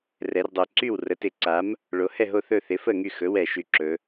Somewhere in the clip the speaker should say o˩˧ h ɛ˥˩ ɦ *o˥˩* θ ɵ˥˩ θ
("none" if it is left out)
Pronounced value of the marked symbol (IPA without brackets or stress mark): o˥˩